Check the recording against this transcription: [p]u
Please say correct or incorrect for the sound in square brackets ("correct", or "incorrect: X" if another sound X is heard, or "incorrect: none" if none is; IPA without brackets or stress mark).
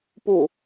correct